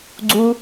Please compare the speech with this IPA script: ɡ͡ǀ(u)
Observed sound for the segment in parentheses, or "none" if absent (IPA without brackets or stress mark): u